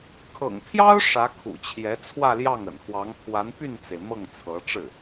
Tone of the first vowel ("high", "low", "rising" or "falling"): low